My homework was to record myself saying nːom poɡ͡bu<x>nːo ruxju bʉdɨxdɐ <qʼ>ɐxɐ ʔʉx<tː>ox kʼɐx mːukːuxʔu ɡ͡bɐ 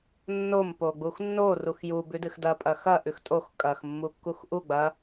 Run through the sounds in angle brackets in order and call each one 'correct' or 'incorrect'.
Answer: correct, incorrect, incorrect

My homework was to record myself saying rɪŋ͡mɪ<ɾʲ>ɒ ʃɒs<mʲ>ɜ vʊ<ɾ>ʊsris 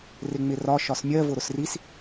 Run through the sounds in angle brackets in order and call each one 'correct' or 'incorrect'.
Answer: incorrect, correct, correct

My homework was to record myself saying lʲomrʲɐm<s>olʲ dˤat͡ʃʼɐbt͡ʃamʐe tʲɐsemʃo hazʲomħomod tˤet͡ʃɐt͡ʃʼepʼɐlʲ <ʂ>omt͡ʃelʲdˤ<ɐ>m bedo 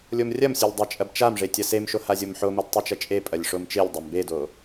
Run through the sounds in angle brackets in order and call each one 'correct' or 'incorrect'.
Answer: incorrect, correct, correct

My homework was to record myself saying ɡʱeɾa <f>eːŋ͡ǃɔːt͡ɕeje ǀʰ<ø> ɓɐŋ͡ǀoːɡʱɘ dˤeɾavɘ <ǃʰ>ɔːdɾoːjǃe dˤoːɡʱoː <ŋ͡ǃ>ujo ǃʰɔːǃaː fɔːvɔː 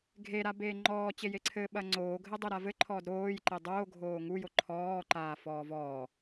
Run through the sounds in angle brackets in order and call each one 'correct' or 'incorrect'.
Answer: incorrect, incorrect, correct, incorrect

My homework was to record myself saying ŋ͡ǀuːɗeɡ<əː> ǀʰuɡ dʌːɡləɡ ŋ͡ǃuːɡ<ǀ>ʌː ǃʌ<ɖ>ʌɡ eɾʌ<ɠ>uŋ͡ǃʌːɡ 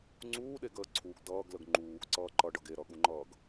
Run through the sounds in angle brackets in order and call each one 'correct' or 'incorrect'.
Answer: correct, correct, correct, correct

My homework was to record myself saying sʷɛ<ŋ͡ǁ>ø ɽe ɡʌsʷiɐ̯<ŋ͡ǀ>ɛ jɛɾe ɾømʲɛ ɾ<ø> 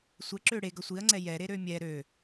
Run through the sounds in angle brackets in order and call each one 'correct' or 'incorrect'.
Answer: incorrect, correct, correct

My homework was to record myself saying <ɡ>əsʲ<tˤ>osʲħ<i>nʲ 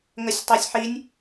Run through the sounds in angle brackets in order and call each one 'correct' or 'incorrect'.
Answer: incorrect, correct, correct

